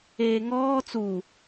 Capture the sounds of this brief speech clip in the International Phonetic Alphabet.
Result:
eːŋɔː t͡su

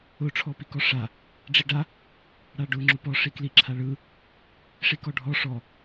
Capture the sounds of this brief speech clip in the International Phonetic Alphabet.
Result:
ʊ ʈ͡ʂʰɔpikɔʂa | ɖ͡ʐiɖa | ɽaɖʊ ŋ͡ǁʊpɔ ʂikli ǁʰaɭɯ | ʂikɔɖʱɔ ʂɔ

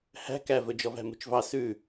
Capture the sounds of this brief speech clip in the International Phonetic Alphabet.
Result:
hæ̤ kævɵ d͡ʒɔvæ̤mṳt͡ʃvɑ sʉ

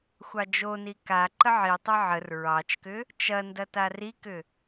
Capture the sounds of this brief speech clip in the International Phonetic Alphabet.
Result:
xʷɑd͡ʒoni ka ǃəʕitˤɐ ʕər ɹɑt͡ʃkʏ | t͡ʃɐndɐ tarikʏ

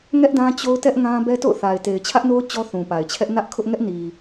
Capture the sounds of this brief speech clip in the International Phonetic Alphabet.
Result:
ŋɛ˦ʔdã˦ t͡ɕo˦ʊ̯tɛ˦ʔ ŋã˦ bɛ˦to̰˦˨ʊ̯θa˨ɪ̯ te˨ɪ̯t͡ɕʰä˦ʔno˦ʊ̯ t͡ɕɔ˦θũ˨pa˨ɪ̯t͡ɕʰɛ˦ʔ nä˦ʔkʰʊ˦ʔ ŋɛ˦ʔni˨

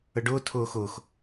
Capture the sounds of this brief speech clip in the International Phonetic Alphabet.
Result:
əɖʊː tʰʊːxʊːx

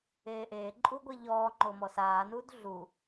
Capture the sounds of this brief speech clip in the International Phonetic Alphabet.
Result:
eːʔeːǃʼu ɡʷeʎɔːŋ͡ǃo mɔsaːnuːd ɮu

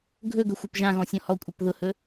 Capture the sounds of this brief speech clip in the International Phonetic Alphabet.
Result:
ɡʱɵɡɵ xʷapʒãɣɔ̃ sʲɔ̃hɔkʷʼap ðʊhɵ

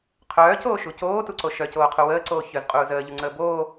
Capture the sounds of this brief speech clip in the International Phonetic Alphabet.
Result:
qʰœːcoːʃu coːtuǀo ʃœcoːqʰu wəːǀoː çœzqʼuːz əːʎuŋ͡ǀəː boː

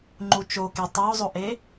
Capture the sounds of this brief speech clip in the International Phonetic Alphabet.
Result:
ŋ͡ǃut͡ʃoke tˤozˤoʔe

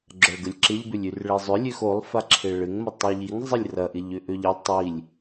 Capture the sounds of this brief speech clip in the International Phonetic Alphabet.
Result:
ɡ͡ǁɐɭɡəlʲǁɪʎbʏlʲ yrɭezˤʏ lʲøxolˠfaǁʰe ɭɪŋmɐ tˤiʎiŋ zˤɪlʲrɐʔɪʎ ʏʔøʎɪ tˤilʲ

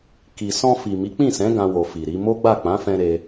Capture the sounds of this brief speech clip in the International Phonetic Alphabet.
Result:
ki˨sɔ̃˧ fi˨mi˨˦k͡pĩ˦˨sɛ̃˨˦ ɡã˧wo˨ fi˨ɾi˨˦ mo˦ɡ͡ba˦˨ k͡pã˨˦fɛ̃˧ ɾe˧

